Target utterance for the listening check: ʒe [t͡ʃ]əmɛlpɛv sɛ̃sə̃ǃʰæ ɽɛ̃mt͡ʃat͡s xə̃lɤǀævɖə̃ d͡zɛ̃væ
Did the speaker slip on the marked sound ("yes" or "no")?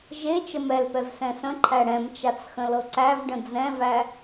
no